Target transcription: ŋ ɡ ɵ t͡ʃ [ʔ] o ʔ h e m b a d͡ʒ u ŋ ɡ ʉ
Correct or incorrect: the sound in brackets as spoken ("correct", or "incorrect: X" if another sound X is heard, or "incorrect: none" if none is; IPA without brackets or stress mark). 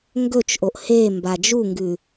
correct